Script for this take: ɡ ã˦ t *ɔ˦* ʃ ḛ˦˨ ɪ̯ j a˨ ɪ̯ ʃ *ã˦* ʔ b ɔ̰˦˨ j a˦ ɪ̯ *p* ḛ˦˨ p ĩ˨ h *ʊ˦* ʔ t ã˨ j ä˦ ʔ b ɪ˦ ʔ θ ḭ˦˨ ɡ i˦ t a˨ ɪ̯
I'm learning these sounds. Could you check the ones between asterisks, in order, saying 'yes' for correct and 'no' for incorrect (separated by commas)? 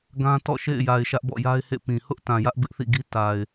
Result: no, no, no, yes